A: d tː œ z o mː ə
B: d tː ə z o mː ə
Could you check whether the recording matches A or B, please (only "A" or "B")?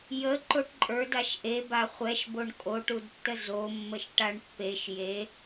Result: B